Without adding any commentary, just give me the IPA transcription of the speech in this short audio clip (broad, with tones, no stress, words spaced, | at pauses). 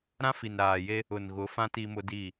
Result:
ɾã˦fi˨n ɾaː˨je˦ | ʊ˨nɣʊ˨˦fã˦ ti˦mʊ˦di˦˨